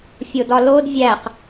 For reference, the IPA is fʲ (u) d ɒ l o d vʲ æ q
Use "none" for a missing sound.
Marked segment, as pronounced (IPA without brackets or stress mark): o